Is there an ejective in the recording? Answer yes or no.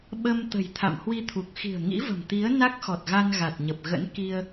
no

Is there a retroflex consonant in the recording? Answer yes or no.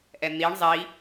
yes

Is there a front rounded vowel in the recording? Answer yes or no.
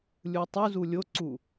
no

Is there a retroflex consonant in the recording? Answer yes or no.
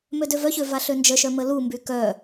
no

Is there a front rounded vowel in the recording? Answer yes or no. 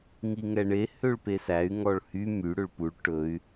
yes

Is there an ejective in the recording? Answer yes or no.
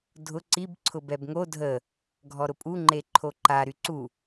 yes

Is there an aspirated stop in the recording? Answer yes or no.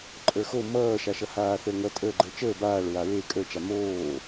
no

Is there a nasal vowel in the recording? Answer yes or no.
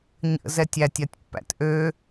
no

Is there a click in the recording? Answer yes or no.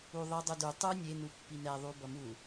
no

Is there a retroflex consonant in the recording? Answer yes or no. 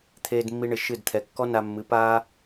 yes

